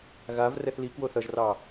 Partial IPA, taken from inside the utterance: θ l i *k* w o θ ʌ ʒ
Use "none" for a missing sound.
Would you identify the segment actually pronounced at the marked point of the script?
k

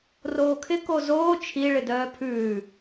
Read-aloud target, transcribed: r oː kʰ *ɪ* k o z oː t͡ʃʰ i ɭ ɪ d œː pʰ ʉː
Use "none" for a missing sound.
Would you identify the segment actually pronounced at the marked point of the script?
ɪ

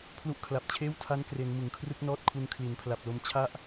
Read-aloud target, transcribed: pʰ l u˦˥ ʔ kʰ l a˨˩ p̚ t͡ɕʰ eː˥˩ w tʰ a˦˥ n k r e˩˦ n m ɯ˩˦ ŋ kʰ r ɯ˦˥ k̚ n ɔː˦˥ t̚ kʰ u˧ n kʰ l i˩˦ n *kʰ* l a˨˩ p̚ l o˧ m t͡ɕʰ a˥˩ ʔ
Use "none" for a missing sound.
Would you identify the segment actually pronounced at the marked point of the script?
pʰ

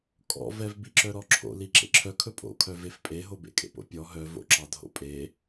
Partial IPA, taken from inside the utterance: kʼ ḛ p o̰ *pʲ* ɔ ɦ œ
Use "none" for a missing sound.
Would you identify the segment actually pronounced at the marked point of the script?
pʲ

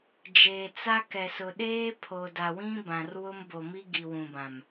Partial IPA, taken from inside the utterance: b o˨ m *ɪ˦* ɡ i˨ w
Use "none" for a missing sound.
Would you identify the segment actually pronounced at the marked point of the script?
i˦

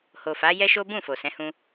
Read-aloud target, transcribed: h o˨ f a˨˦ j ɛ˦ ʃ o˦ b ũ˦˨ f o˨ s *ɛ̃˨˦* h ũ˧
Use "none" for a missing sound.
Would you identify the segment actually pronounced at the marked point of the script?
ɛ̃˨˦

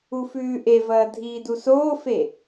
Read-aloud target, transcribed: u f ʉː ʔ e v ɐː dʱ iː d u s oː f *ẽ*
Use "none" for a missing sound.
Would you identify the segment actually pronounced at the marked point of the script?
e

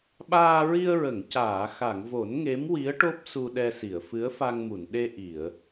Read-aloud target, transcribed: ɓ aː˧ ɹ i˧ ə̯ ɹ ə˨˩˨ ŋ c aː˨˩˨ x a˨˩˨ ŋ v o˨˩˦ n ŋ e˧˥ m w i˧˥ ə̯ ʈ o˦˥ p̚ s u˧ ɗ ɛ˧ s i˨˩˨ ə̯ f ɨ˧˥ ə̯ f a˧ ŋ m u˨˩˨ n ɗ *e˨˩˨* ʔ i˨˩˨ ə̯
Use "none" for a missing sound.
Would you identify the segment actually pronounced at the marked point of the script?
e˧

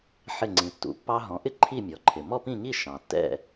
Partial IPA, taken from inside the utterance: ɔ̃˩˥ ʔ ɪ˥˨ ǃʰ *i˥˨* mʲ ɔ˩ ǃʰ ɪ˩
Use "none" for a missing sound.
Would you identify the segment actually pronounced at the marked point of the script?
i˥˨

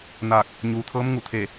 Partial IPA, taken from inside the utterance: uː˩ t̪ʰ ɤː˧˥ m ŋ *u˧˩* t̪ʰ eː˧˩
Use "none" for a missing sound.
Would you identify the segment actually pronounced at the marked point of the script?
u˧˩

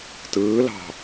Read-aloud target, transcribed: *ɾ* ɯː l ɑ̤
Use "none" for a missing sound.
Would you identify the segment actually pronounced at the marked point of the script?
t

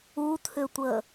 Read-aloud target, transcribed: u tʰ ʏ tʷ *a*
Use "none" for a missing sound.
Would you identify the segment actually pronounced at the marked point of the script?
ə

